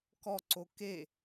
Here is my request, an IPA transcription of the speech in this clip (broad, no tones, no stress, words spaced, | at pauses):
kɔǀo ke